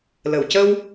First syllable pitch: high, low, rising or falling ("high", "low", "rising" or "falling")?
low